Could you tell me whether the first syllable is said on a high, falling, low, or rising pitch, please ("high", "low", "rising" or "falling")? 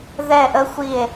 falling